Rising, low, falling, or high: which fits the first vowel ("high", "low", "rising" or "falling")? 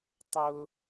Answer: high